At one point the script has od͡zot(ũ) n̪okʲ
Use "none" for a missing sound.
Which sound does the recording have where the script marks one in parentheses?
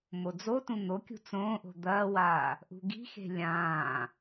ũ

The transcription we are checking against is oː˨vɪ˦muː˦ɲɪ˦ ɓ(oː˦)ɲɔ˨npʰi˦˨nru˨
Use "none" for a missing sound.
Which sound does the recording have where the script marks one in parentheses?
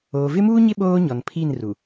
oː˦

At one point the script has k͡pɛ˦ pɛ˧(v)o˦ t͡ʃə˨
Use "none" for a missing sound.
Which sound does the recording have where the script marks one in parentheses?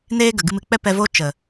v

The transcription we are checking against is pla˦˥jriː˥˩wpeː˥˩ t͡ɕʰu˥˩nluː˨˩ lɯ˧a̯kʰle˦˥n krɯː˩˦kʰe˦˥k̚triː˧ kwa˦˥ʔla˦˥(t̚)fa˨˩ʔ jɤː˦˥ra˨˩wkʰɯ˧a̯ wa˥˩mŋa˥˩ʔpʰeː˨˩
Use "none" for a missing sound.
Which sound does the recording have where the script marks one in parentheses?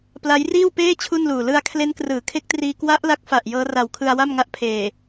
k̚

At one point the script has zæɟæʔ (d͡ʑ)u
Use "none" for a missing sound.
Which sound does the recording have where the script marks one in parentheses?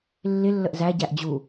d͡ʑ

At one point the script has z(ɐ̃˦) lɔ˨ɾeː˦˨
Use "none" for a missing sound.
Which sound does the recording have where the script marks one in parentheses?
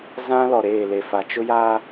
ã˦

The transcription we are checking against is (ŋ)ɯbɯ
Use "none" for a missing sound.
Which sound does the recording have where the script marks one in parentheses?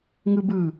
ŋ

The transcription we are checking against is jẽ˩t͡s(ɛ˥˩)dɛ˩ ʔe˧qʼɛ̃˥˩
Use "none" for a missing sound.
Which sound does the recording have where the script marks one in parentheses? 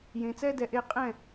ɛ˥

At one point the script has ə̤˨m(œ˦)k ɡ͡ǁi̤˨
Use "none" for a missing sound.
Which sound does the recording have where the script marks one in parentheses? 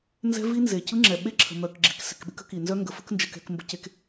œ˨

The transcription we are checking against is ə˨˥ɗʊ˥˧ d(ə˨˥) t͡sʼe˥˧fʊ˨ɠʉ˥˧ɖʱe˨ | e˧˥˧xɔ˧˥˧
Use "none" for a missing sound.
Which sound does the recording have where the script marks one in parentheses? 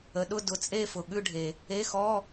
ʊ˨˥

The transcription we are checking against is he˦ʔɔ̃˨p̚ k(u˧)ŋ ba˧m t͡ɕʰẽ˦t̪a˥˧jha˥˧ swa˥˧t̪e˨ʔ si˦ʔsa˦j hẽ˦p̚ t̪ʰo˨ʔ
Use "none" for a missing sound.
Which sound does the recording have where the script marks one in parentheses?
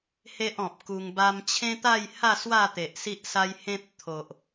u˧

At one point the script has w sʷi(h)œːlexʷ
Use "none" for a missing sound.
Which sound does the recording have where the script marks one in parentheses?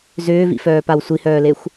h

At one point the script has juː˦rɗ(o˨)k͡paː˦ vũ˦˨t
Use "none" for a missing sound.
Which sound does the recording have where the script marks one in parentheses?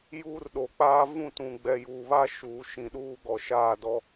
o˨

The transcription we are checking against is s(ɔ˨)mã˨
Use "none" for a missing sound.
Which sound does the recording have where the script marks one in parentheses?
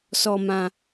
ɔ˨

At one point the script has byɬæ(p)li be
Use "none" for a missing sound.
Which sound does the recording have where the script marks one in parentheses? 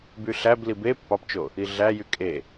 b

